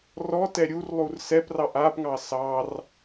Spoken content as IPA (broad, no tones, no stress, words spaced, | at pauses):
rɔtɛ ɾʲurlˠur sɛprɑʔ apŋɑ sɑr